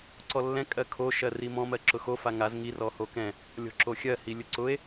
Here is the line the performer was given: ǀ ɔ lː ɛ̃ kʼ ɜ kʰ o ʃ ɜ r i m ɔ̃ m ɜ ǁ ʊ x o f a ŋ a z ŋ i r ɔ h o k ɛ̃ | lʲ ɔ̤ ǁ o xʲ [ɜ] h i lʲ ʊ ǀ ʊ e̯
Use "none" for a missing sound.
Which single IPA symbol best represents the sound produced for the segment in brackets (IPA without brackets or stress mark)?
ɜ